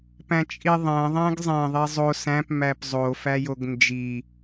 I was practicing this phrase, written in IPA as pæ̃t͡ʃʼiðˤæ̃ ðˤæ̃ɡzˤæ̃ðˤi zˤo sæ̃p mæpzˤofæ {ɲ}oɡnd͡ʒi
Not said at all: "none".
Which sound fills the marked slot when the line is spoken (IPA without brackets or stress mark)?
j